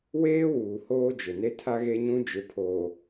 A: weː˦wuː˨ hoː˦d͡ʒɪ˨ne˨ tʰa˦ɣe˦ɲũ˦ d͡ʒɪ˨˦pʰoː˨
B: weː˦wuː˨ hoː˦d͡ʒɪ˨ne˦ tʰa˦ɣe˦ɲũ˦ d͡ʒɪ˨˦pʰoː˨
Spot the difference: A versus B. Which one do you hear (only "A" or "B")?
B